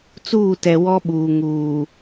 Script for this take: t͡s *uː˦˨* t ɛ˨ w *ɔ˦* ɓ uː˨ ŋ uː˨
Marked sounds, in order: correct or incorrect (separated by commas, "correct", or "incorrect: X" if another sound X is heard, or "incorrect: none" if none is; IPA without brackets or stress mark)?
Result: correct, correct